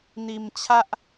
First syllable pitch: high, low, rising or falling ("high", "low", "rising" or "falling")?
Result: low